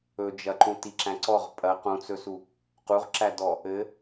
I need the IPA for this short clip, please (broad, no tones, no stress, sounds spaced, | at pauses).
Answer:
ɵ d͡ʒ ɐ ǃ ũ t i ǁ æ̃ ǀ ɔ ʁ pʼ ɐ q ũ t͡s ɵ s u | q u ʁ ǁ æ d ɔ | ɘ